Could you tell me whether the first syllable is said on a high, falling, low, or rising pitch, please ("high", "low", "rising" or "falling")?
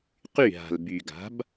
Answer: falling